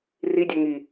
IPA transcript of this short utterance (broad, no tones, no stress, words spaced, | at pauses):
ridʲœ ŋi